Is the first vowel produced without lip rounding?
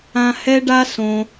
yes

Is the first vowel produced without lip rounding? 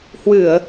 yes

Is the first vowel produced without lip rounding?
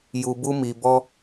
no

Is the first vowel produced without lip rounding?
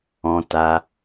no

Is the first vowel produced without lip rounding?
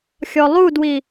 no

